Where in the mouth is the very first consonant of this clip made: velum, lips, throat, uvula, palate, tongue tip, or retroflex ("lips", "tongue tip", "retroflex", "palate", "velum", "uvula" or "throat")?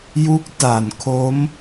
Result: palate